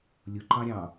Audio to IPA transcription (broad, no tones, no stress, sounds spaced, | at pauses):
lʲ ʊ ǃ ɑ̃ ɾʲ ɑ̃